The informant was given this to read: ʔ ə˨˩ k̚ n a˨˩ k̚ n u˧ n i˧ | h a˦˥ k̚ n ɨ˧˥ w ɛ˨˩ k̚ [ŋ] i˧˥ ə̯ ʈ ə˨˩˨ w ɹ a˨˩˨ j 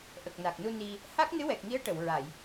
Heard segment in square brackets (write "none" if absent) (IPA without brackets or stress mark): ŋ